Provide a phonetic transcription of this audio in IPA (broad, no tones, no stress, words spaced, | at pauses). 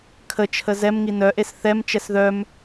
kʰət͡ʃʰə zɛmŋi nœʔes θɛmt͡ʃɛs ðœm